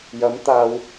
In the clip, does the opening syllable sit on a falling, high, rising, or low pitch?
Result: rising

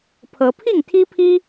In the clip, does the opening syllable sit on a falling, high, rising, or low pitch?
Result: rising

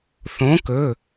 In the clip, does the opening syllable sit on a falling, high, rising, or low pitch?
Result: rising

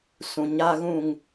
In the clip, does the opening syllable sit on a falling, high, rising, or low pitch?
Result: low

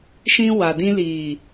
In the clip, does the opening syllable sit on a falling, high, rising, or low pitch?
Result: high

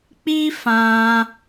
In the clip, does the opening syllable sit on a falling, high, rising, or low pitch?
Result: high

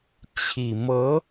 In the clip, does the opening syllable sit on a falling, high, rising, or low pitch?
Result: low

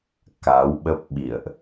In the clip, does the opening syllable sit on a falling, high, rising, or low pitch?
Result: rising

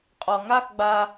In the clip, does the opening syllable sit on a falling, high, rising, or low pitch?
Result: low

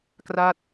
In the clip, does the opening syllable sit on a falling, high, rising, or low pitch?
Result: falling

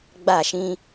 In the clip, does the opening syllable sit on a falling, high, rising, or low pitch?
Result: falling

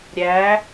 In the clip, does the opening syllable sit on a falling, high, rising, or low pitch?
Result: rising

